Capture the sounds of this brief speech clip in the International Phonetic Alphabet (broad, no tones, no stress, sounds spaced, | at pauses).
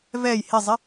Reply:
v ɛ j h ɪ zˤ ɪ